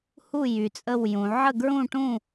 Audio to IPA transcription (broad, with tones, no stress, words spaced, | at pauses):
hu˥˨ jy˩˧t͡sʼə˥˨wjũ˩˧ ʕə˥˨ɡɹũ˥˨ʈũ˥˨